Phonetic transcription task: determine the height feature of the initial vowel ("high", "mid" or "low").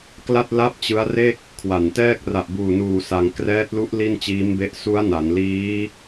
low